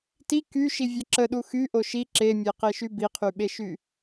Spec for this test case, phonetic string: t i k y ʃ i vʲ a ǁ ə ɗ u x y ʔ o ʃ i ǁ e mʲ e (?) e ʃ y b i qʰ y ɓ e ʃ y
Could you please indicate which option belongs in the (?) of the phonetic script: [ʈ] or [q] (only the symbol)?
q